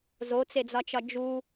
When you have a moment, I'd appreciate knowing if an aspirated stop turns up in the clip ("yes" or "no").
no